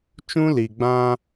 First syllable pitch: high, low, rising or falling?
high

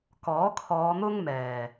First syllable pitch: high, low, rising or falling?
rising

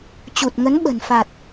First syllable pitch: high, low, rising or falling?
low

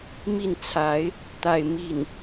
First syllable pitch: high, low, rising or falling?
falling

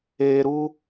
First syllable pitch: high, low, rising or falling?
high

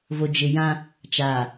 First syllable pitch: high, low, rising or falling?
low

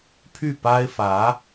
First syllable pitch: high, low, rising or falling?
falling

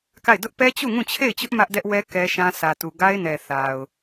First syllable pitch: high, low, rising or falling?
falling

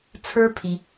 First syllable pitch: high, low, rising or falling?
high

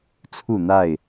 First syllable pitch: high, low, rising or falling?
falling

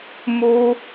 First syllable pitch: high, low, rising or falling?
high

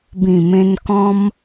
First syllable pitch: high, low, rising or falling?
low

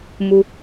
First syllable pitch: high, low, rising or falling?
high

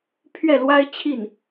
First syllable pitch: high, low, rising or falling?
falling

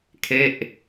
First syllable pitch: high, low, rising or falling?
falling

